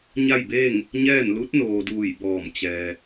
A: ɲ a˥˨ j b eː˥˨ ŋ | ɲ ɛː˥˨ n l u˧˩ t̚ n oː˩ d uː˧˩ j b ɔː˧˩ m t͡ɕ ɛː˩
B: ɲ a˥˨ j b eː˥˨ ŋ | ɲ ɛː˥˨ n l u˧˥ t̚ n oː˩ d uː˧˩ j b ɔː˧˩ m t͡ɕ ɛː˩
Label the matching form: B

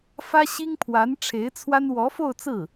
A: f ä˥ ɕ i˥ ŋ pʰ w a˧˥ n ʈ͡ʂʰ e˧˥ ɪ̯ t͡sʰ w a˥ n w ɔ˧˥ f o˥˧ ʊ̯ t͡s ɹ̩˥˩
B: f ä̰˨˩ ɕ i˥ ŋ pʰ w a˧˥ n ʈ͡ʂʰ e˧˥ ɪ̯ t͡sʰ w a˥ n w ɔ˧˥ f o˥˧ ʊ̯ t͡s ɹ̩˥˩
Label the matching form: A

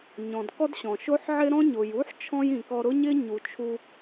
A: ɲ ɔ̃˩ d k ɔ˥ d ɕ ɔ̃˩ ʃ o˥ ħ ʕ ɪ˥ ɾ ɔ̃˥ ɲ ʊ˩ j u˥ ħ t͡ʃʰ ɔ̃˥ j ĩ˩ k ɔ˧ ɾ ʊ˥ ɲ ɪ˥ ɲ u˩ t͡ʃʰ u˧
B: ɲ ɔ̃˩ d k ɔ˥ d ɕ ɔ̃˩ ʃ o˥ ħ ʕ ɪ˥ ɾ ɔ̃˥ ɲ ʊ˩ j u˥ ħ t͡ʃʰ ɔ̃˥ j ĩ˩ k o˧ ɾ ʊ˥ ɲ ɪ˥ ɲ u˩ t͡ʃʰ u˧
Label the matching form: A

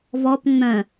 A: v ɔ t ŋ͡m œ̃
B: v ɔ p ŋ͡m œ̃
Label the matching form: B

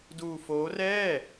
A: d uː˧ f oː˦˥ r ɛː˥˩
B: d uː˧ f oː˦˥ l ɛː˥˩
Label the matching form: A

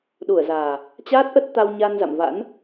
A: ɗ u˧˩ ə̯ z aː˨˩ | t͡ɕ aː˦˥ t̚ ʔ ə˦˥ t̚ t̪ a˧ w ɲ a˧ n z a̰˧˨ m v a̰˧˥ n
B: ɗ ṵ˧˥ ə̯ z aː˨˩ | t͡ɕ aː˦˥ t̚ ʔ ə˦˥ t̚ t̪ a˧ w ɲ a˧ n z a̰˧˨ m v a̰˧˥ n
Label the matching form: A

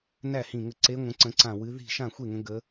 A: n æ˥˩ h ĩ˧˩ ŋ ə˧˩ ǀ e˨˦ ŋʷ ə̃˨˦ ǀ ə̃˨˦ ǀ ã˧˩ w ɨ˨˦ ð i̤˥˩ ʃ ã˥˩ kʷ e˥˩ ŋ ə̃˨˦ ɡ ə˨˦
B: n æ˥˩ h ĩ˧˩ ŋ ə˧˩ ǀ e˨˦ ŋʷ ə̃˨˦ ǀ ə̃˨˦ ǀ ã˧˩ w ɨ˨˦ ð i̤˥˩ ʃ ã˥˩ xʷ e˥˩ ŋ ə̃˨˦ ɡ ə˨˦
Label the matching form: B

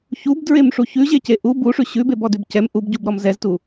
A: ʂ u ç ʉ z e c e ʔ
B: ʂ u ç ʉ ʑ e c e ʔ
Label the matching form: B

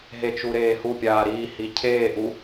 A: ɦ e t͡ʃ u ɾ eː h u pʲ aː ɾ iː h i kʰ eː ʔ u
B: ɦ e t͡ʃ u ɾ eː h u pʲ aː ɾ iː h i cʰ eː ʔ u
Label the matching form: B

